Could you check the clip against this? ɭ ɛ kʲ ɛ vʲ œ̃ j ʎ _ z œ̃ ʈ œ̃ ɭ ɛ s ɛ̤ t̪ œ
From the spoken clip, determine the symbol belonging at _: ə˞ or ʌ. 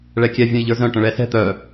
ə˞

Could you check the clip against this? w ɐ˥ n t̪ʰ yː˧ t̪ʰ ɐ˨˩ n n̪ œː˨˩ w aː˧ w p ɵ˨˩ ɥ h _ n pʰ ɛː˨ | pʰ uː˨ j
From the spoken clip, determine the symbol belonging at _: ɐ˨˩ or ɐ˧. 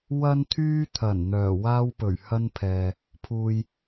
ɐ˧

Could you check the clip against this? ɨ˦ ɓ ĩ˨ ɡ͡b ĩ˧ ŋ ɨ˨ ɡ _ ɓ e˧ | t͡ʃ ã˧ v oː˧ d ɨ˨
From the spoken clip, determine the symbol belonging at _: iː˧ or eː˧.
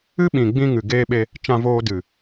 eː˧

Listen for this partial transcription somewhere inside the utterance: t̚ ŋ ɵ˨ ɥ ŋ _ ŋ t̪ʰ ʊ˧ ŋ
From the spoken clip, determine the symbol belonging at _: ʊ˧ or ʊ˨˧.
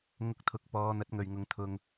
ʊ˨˧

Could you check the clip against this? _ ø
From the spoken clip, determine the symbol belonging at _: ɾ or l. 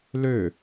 l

